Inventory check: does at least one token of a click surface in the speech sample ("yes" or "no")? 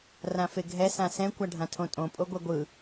no